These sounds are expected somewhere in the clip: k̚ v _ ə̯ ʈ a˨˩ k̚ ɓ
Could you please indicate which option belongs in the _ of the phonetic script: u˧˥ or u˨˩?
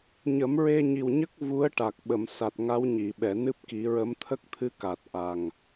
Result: u˧˥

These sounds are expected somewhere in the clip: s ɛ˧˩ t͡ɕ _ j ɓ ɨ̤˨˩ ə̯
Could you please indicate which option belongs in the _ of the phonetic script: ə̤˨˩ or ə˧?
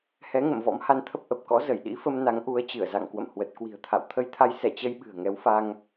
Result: ə˧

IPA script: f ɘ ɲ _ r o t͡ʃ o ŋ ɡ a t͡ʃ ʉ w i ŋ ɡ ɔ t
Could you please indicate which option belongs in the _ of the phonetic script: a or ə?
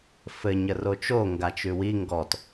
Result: ə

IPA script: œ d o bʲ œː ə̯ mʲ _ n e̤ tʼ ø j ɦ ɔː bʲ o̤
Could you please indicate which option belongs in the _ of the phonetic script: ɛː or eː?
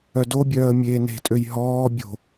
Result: eː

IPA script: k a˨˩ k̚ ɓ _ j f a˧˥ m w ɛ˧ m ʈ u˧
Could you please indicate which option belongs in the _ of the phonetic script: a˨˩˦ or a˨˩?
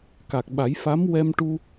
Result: a˨˩˦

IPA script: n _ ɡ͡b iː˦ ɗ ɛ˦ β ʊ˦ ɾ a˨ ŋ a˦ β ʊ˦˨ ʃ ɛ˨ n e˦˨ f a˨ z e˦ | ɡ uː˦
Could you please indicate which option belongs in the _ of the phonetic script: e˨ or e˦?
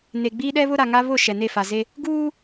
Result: e˨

